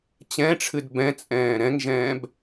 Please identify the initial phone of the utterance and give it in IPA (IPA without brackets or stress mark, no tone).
t͡ɕ